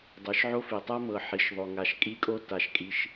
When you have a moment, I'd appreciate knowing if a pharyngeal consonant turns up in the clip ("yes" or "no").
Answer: yes